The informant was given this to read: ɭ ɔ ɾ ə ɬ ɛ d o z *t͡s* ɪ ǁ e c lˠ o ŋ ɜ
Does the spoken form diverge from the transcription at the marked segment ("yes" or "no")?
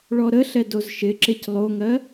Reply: yes